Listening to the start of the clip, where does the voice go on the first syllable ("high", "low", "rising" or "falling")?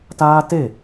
high